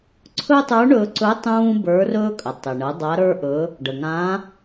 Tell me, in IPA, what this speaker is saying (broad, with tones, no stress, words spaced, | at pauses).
ǀʰɵ˥tˤə˞˧˥ɳɵː˧ǀɵ˧˥ tˤũː˥bə˞˧˥rɵː˥kʼə˩ tˤɪ˩ɳə˩˧ dˤa˧˥ɾə˞˥ʔɵ˧˥ | ɖə˩ŋã˧˥